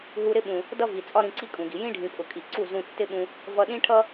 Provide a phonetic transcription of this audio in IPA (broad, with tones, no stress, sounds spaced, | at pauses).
ɦ u˧ ɾ ɪ˦ ɓ ũ˨ | d ʌ˦ v i˨ t͡sʼ ɒ˦ ɾ ĩ˧ ǀ i˦ kʼ ũ˨ ɡ i˨ j ĩ˦ ɖʱ ĩ˨ pʼ ʊ˨ kʼ i˨ ǀ u˦˨ z ũ˧ tː ɪ˦ ɓ ũ˧ | v ʌ˧ ɗ ĩ˦ ʈʰ ʌ˦